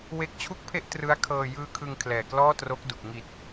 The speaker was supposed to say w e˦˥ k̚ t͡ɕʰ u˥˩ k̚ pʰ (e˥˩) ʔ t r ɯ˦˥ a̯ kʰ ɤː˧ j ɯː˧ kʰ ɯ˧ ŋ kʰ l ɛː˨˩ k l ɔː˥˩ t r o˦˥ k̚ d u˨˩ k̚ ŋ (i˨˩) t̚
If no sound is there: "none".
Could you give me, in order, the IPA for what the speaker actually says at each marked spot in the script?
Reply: e˥˩, i˨˩

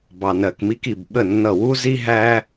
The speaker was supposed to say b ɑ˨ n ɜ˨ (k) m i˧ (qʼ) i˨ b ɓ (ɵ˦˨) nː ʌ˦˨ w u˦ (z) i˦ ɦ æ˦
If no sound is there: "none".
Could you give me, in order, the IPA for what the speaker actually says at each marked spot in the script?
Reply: k, k, ə˦˨, z

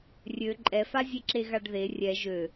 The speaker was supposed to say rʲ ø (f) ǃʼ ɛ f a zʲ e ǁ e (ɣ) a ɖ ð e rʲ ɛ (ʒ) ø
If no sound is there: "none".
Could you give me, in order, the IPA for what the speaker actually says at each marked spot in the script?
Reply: none, ɣ, ʒ

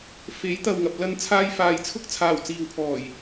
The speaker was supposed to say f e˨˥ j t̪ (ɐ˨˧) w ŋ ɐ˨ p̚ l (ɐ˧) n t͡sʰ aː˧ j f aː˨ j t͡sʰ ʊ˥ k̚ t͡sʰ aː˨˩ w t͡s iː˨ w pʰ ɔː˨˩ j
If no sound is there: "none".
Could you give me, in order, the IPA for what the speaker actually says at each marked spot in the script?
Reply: ɐ˨, ɐ˧

